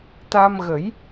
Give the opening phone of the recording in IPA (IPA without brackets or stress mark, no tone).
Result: t̪